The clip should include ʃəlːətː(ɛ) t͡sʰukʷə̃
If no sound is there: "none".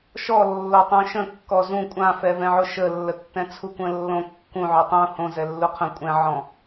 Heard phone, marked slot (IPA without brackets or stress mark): ɛ̃